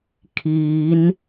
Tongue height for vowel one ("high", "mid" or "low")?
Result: high